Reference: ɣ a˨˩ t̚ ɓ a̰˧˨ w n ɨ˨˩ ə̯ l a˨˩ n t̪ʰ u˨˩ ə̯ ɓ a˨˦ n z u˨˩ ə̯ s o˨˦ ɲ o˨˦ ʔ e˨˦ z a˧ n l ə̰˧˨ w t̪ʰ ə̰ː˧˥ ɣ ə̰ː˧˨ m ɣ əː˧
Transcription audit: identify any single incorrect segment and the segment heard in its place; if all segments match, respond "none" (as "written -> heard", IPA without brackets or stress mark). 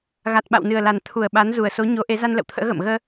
none